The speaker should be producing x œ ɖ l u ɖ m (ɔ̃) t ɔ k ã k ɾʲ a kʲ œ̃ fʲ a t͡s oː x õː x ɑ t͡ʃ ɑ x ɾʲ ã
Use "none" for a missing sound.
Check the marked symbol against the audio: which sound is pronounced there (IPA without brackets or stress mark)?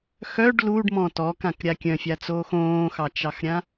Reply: ɔ̃